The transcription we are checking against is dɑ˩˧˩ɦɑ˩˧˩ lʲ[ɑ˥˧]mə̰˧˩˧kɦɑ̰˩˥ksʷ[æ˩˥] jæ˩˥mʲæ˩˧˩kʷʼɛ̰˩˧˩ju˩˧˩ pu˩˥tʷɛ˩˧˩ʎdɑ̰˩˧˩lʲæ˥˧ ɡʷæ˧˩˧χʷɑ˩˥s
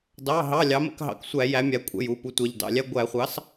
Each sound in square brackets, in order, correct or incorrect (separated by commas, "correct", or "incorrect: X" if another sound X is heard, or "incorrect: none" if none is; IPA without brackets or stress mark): incorrect: ɑ˩˥, incorrect: æ˧˩˧